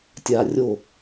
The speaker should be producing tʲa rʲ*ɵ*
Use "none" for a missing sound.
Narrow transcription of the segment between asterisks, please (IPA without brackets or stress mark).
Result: o